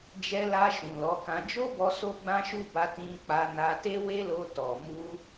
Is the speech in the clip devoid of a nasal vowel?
no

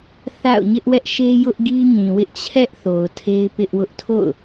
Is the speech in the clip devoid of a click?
yes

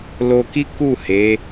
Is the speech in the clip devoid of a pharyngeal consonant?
yes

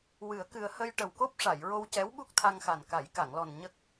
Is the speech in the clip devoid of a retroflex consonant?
no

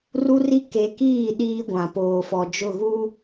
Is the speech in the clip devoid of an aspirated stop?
yes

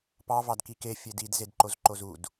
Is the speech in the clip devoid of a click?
no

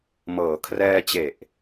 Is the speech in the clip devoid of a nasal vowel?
yes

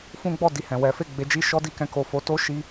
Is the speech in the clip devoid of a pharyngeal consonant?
yes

